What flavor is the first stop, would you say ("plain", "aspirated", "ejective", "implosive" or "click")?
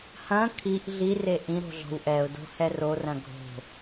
aspirated